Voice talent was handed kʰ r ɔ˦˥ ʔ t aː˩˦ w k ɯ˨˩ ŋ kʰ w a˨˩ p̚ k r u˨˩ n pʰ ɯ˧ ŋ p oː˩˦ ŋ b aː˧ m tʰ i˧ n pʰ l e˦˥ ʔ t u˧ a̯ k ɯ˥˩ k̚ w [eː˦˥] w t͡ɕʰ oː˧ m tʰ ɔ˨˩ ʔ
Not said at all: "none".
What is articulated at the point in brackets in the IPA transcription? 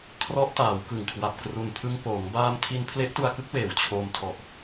eː˨˩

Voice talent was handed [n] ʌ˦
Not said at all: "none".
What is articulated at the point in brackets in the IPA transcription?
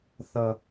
θ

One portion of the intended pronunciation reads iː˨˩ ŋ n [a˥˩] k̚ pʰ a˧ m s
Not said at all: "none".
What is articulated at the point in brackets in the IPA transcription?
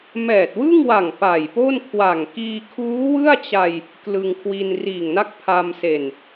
a˥˩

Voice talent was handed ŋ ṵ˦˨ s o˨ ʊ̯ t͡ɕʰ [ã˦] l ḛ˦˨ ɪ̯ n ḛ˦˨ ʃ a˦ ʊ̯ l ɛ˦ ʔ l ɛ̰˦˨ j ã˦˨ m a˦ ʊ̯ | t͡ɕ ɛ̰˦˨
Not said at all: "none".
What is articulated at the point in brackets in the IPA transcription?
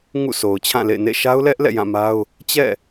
ã˦˨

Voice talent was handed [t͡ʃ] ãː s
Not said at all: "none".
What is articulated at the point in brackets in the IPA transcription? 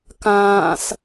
k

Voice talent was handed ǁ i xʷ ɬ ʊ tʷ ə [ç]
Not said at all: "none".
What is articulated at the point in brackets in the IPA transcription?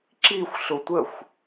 xʷ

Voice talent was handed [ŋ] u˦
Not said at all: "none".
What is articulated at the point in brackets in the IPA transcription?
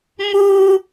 m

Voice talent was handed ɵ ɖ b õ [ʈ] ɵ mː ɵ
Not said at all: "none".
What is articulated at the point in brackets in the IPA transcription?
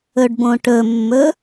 ʈ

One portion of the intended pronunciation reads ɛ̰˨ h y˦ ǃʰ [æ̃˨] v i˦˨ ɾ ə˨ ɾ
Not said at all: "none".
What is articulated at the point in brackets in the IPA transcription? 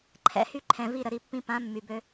ɛ̃˨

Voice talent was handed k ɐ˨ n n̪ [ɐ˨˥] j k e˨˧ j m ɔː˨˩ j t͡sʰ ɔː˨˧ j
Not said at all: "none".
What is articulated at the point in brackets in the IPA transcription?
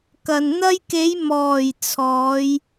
ɐ˧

